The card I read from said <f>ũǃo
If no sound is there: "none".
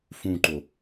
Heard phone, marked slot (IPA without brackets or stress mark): f